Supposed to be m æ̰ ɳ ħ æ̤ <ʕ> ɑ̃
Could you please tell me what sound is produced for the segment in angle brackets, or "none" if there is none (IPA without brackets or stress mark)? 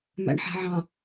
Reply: ʕ